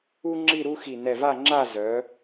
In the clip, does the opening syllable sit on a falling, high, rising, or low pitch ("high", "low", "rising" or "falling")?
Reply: high